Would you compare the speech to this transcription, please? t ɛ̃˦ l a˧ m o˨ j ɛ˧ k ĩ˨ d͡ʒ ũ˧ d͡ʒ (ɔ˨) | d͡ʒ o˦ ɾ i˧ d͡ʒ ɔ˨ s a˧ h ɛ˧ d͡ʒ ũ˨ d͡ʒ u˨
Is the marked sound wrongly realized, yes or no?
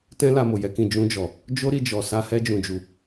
no